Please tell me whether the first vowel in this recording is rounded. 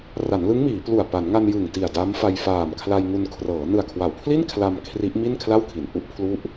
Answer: no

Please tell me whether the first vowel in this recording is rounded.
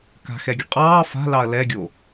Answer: no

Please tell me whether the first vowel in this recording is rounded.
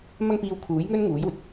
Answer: no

